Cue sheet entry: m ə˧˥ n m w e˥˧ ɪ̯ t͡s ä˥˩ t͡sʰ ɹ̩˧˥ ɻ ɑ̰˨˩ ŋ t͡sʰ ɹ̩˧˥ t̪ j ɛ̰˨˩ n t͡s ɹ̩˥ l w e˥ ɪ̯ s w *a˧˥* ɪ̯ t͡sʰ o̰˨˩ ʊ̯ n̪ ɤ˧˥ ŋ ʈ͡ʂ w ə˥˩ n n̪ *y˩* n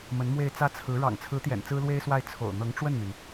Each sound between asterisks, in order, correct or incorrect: incorrect: a˥˩, correct

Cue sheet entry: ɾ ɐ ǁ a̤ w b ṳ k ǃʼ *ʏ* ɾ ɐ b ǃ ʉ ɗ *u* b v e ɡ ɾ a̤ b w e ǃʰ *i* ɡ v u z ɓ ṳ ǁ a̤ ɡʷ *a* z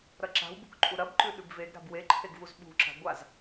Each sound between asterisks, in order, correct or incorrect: incorrect: u, incorrect: ʉ, incorrect: e, correct

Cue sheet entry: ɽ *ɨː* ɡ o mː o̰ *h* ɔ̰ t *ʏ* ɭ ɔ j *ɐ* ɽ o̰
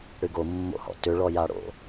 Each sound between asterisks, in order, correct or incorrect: incorrect: ɨ, correct, correct, incorrect: a

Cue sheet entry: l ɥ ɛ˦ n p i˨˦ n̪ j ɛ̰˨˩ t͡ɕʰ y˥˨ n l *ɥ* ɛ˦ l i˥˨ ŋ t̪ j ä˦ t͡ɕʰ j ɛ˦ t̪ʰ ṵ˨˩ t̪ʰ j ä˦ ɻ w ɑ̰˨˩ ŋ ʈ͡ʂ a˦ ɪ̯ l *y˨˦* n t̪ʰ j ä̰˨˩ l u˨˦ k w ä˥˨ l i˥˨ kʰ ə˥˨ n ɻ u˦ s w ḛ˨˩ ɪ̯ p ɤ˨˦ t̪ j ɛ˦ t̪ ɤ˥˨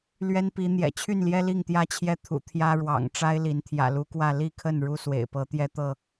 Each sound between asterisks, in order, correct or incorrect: incorrect: j, incorrect: i˨˦

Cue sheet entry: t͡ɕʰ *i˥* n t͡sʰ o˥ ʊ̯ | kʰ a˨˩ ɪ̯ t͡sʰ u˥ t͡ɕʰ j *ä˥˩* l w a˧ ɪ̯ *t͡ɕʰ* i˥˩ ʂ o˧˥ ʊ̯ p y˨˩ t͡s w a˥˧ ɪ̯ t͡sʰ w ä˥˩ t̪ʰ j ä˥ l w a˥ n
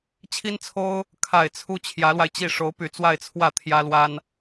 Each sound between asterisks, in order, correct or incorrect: correct, incorrect: ä˧˥, incorrect: t͡ɕ

